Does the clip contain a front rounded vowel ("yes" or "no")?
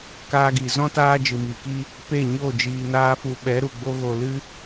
no